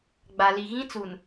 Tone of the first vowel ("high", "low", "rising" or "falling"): low